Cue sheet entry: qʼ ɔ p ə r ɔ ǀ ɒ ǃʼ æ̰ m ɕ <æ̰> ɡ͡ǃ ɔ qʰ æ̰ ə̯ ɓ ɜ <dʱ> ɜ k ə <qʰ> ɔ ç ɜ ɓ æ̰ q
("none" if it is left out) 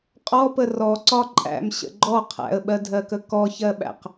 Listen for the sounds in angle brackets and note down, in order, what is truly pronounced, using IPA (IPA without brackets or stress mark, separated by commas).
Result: ə̰, dʱ, k